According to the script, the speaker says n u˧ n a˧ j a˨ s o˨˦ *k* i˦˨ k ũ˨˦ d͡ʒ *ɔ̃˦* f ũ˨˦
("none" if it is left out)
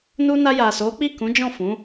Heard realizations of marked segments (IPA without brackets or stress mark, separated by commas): k͡p, ɔ̃˦˨